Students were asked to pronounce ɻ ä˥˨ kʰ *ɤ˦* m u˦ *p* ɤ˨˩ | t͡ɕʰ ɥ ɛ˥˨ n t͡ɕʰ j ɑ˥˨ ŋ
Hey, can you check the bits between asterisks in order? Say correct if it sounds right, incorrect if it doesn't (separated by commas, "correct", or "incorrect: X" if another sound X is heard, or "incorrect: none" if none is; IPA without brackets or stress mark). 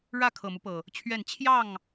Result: incorrect: ɤ˨˩, correct